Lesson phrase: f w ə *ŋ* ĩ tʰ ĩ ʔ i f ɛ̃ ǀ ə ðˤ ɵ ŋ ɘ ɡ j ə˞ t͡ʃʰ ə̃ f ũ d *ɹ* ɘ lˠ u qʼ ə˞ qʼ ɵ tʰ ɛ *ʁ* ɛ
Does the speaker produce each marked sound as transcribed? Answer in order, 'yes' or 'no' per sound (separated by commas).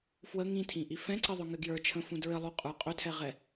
yes, yes, yes